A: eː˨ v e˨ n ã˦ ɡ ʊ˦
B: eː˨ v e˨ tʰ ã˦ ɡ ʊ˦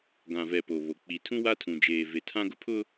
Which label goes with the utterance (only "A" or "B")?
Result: B